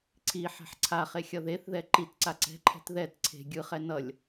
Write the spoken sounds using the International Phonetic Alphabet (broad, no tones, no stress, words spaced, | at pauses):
ǀʰi ħɛ̤ħǀʰaχe xʲʌðeθðɛ ǃitǀa ǀɛ̤ǃʰɛ̤t ðɛt ǀʰe̤ ɡʲɯχɛ nʌlʲ